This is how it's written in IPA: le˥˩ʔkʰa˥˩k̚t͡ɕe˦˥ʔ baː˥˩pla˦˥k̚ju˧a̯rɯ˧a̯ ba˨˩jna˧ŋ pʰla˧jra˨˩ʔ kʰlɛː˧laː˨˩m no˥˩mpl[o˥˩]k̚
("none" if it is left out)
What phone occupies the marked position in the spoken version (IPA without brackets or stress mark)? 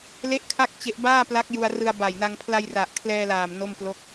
o˥˩